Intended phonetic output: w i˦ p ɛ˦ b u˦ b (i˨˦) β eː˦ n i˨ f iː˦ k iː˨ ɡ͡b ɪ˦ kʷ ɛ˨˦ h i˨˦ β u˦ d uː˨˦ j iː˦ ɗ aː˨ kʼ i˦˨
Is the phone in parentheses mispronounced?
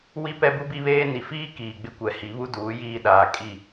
yes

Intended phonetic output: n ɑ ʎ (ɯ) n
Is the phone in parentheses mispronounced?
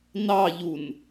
yes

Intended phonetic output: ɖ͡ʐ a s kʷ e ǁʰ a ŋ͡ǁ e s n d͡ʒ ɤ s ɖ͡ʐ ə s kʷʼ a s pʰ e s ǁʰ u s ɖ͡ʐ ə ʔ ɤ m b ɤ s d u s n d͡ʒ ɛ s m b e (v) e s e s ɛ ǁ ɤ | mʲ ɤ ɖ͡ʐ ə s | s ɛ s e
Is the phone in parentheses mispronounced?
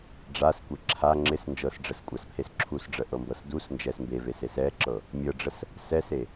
no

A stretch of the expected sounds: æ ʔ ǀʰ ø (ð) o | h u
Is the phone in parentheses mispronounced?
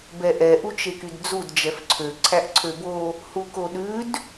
yes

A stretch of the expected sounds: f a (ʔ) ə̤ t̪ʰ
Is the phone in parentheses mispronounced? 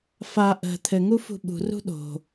no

